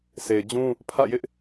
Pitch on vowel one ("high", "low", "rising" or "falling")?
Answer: low